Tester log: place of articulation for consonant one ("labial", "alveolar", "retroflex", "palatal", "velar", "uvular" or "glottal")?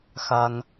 velar